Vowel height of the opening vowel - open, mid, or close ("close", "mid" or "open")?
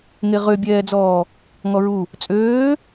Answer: mid